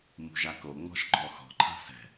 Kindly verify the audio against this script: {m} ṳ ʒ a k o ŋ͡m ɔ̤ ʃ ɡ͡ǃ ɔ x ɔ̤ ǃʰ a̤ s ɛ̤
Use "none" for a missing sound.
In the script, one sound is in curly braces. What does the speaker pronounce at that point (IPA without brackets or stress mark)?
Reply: m